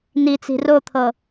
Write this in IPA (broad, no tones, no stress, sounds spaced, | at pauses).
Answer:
n i t͡s i̤ r o t̪ʰ ɤ